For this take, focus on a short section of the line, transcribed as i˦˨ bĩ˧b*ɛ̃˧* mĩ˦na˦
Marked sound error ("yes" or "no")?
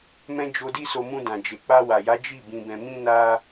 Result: no